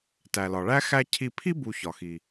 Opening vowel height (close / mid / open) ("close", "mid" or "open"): open